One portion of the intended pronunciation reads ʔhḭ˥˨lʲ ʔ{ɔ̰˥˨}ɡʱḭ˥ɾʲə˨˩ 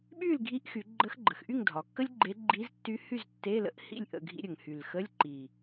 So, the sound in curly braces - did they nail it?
no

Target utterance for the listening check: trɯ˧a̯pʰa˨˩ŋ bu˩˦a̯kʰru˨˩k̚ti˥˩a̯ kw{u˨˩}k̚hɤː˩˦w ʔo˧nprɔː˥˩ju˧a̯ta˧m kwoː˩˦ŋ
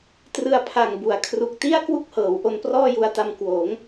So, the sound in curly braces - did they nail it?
no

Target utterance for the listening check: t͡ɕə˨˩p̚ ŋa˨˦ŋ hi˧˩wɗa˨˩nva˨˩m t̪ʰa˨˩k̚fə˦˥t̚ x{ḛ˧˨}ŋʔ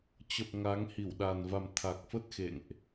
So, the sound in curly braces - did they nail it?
yes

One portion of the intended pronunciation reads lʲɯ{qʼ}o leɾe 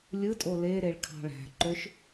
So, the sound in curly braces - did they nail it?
no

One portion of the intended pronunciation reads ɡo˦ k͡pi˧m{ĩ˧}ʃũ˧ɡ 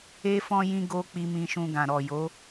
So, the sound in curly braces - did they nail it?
yes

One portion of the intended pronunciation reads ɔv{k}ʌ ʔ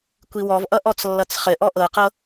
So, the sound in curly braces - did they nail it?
no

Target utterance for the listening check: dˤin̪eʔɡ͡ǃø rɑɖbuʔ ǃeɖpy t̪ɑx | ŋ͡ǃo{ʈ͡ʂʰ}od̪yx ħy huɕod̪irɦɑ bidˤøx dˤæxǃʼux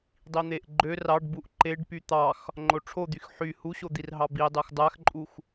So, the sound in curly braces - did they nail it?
yes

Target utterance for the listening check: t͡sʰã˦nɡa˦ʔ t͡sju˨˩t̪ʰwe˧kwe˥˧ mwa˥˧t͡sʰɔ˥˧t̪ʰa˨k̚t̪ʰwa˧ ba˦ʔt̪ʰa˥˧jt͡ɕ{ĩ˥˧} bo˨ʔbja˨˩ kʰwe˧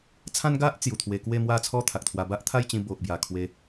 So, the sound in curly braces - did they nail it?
no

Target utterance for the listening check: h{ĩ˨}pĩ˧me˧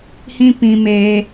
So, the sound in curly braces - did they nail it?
no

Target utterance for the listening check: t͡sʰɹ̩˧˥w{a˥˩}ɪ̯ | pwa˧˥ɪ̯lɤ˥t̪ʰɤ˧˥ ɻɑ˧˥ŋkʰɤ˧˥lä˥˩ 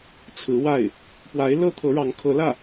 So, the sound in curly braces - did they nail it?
yes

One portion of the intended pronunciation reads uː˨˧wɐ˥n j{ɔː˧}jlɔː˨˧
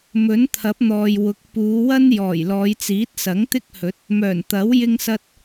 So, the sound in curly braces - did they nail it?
no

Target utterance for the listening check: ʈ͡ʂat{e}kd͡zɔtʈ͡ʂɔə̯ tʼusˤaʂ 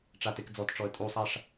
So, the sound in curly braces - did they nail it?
yes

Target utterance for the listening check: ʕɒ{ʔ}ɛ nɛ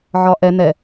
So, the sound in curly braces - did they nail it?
yes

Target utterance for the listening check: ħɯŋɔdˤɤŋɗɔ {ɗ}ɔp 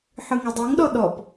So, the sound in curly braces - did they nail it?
yes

